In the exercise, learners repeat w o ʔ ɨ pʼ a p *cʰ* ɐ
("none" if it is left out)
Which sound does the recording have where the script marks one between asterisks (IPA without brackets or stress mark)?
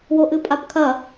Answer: kʰ